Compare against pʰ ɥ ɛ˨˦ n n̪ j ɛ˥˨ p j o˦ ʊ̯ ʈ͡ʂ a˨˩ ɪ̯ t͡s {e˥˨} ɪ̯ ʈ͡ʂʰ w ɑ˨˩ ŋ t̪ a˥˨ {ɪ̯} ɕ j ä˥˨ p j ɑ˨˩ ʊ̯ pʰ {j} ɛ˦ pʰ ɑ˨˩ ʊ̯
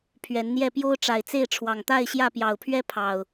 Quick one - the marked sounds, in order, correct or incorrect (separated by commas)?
correct, correct, incorrect